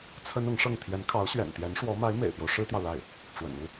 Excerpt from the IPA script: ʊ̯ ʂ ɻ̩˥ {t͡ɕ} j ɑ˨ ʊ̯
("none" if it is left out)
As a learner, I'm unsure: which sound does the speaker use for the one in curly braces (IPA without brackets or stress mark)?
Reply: t̪